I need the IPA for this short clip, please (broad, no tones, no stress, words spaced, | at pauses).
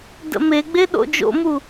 də̰meɡ͡be ɗo̰d͡ʒo̰mu